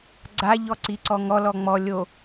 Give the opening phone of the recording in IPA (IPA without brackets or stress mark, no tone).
ɡ͡ǀ